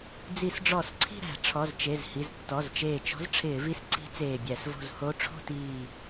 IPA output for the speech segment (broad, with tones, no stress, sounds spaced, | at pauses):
d͡z i˧˩˧ s ɖ͡ʐ ɔ˧˩˧ s ǀʰ i̤˥˧ ɾ æ̤˧˩˧ ʈ͡ʂʰ ɔ˩˧˩ z t͡ʃ e˩˧˩ z h i˩˧˩ z tː ɔ˩˧˩ z t͡ʃ eː˧˩ t͡ʃ ɔ̤˧˥ z ʈ͡ʂʰ ɪː˧˩˧ v i˧˥ s ǀ i̤˧˥ t͡s eː˧˩ bʲ æ˧˩˧ s v o̤˥˧ z h o˧˥ ʈ͡ʂʰ o̤˥˧ t iː˧˩